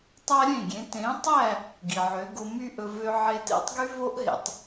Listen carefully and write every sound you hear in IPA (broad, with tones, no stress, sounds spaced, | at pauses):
tˤ æ˥ ɾʲ ẽ˥˩ ɡʲ ẽ˩˥ t ẽ˩˥ tˤ æ˥˩ | ɡ i˩ ʕ ø˩˥ ɡ o˧ m y˥ ʔ ɵ˧ v ø˥ ʕ e˥ t ḛ˥ tˤ ɡ y˥ v o˥ ʔ ɦ ḛ˩ tˤ